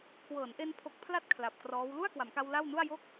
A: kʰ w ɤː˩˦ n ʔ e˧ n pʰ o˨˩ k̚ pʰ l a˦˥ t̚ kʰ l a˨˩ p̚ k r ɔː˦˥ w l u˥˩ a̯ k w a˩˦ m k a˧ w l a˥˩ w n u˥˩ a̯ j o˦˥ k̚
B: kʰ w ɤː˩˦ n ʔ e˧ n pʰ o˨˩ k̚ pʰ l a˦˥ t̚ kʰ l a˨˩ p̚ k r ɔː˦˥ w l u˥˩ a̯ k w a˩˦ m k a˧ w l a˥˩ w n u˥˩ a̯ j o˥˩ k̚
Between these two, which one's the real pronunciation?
B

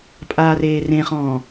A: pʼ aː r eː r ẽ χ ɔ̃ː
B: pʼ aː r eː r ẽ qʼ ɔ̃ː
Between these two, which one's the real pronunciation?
A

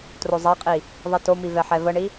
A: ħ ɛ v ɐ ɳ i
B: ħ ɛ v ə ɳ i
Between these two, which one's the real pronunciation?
B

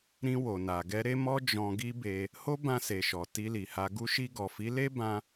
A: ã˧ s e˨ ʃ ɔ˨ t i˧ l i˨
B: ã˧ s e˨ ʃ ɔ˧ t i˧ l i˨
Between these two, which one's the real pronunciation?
A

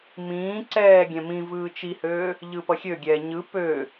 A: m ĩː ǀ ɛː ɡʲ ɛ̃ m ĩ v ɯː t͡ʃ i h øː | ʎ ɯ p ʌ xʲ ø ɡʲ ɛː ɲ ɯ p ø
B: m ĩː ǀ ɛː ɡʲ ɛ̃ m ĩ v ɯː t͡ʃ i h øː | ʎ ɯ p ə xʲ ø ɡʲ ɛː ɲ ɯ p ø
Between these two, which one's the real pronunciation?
A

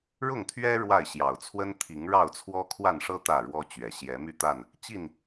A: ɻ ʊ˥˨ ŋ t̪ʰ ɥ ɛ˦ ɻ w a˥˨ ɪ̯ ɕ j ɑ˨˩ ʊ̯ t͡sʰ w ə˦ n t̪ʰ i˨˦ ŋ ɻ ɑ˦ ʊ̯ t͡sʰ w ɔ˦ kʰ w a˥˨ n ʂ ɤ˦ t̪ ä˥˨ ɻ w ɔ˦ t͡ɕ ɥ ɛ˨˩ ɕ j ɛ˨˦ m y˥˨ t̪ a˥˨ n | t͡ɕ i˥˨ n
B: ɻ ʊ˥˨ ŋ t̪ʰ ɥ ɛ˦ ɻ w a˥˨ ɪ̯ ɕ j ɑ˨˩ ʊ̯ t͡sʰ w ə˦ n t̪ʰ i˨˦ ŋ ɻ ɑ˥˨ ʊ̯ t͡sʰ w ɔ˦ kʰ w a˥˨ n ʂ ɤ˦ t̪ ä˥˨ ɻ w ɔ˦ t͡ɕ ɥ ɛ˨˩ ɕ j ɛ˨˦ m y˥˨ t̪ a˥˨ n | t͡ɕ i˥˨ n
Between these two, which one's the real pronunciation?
B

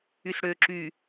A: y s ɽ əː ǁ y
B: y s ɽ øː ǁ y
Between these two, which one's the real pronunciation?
B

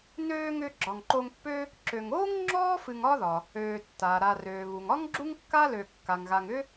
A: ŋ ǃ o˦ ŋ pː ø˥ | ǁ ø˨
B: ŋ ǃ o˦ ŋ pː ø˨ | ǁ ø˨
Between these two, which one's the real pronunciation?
A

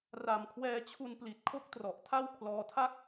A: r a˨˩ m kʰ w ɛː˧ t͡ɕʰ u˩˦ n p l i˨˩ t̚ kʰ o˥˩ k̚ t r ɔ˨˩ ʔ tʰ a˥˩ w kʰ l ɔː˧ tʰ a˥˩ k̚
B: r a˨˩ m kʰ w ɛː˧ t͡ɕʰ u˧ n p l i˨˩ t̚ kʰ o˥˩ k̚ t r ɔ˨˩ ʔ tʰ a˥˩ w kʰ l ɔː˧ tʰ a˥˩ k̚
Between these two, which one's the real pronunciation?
B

